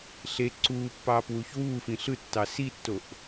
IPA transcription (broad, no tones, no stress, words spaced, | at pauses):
ɬe ǀuː pːɑːpwuːçwuːfĩ ɬɯtːɑ sitːoʔ